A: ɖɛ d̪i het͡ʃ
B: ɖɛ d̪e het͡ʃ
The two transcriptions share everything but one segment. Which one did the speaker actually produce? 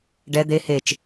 B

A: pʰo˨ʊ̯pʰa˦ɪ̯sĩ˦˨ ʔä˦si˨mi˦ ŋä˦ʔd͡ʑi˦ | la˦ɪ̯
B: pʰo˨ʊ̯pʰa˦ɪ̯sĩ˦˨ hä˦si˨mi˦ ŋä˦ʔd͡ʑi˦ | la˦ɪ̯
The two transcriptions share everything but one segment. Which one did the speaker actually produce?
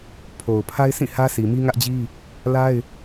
B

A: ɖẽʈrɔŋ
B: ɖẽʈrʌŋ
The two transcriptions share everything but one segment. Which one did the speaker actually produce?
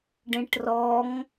A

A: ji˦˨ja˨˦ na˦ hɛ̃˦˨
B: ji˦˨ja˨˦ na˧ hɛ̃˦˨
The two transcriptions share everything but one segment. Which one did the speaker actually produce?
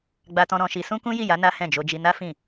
A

